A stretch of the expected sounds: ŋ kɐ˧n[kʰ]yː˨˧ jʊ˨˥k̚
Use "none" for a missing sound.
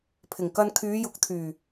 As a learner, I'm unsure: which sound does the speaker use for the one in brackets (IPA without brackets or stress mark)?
kʰ